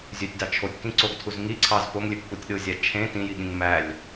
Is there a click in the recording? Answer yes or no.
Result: yes